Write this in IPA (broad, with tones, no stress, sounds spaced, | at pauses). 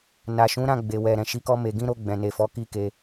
n a˨ ʃ ũ˨˦ ɾ ã˦˨ ɡ͡b e˨ w ɛ˨ ɾ ɛ̃˨ ʃ i˨˦ k ɔ˧ m e˨ ɡ ĩ˧ ɾ o˧ ɡ͡b ɛ̃˨ n e˨ f ɔ˨˦ k i˦ k e˧